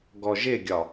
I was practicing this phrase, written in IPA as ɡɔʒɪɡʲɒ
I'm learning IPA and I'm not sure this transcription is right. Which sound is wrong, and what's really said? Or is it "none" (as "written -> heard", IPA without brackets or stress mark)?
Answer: none